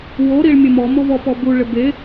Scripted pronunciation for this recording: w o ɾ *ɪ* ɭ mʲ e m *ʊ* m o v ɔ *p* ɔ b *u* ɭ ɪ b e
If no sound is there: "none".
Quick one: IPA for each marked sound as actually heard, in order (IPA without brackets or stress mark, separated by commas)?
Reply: i, ɔ, p, u